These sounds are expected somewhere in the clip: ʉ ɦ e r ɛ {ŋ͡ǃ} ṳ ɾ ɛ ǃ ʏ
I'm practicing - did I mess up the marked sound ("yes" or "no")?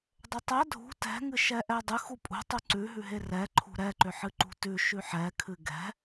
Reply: yes